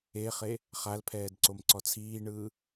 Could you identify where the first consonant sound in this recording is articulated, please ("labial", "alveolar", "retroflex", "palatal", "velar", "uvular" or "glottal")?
uvular